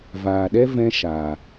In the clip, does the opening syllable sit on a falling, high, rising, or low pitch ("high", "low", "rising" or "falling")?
low